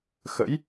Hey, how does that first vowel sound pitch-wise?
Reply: rising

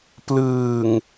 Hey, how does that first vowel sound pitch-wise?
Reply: low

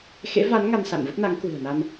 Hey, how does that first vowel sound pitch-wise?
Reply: rising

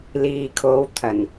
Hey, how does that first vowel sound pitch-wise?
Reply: low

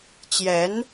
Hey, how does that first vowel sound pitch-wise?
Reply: rising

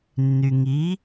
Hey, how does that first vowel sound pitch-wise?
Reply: low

